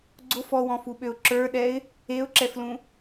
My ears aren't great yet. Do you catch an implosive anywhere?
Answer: yes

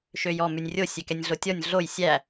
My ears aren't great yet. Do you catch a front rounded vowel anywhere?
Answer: yes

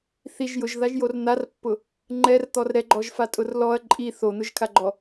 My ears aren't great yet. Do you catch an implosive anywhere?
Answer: no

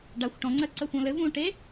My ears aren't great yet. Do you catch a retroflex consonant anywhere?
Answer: yes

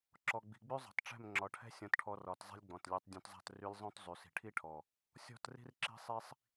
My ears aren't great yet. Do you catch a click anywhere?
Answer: yes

